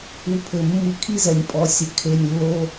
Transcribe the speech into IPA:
u˧pʰɘ˨ mːɨ˧kʰi˦zɛ˨nʲ pʼɔ˨˦sʲɘ˨ kʰe˦˨nʲlːo˦

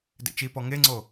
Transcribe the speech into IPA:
dḛt͡ʃipɔ ŋeŋ͡ǀo

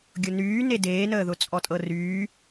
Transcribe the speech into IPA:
ɡʲʊnyː nedeːnəːðʊ t͡sʼɔtʼɤryː

